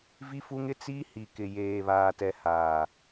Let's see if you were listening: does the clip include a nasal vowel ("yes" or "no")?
no